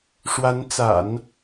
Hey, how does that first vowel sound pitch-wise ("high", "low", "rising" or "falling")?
rising